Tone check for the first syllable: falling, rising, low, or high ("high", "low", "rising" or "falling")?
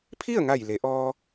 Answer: falling